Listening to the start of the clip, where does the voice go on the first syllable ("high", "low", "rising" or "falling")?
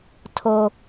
high